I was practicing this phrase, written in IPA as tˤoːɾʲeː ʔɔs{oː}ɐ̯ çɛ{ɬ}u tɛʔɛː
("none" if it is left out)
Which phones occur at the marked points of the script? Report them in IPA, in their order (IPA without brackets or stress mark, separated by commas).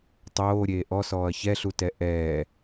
ɔː, ɬ